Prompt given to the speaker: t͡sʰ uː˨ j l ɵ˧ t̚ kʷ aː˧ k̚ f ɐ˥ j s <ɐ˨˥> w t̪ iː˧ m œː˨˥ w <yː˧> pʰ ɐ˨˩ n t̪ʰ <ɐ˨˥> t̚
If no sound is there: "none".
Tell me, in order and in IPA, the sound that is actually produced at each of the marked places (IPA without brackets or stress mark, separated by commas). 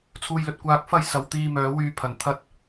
ɐ˨˥, yː˧, ɐ˧